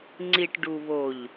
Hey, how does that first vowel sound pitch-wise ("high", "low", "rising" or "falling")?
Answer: low